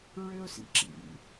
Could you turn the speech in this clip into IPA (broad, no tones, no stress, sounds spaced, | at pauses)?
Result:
ɹ ø ʊ̯ s ḭ ǁ ḭ